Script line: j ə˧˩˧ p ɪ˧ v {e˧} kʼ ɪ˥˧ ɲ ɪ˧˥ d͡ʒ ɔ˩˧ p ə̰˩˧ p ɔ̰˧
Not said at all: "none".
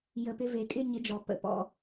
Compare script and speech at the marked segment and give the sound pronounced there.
e˩˧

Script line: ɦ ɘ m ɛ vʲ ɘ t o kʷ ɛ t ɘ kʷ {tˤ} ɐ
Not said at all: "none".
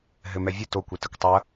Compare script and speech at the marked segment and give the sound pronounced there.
tˤ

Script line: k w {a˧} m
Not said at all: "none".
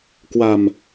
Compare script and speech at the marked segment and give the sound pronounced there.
a˧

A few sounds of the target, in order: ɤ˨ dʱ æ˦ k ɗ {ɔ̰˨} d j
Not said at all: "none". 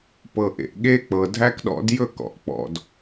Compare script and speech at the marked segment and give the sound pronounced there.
ɔ̰˦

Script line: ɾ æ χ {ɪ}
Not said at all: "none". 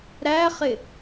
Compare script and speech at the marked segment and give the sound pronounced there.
ɪ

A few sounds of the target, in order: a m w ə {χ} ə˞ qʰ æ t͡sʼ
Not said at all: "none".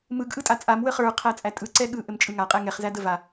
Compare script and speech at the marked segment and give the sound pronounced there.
χ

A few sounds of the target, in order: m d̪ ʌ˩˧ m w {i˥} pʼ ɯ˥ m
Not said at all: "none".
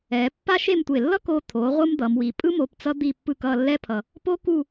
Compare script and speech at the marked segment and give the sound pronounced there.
i˩˧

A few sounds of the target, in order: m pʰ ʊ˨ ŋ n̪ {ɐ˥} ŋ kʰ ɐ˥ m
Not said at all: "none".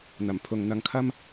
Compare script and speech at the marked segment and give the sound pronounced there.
ɐ˧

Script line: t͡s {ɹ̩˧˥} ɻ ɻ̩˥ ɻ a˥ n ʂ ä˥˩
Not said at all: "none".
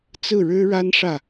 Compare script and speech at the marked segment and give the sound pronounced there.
ɹ̩˥˩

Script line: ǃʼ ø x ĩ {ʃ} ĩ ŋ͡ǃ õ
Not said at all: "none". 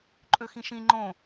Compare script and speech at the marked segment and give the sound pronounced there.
ʃ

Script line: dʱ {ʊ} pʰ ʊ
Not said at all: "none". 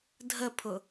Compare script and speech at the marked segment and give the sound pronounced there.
ə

